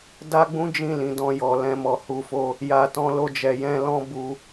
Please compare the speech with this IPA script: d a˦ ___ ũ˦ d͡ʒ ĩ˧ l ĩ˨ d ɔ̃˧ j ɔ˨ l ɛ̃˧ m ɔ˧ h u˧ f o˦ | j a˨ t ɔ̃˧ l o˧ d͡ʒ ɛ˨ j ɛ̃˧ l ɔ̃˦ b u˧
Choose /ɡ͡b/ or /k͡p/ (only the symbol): ɡ͡b